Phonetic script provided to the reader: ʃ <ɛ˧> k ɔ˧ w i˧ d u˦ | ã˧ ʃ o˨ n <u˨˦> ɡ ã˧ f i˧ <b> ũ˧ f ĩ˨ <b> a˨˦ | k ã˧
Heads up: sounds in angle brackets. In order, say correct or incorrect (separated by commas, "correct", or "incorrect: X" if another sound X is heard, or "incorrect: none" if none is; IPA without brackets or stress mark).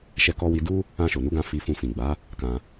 correct, correct, incorrect: f, incorrect: ɡ͡b